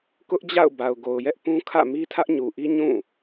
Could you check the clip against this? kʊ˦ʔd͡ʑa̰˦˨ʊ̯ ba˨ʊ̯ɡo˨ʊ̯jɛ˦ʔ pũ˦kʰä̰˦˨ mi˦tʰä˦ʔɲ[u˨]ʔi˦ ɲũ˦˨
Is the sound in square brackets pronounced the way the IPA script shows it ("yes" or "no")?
yes